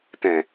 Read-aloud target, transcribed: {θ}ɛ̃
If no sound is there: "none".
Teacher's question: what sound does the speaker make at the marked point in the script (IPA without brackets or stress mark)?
t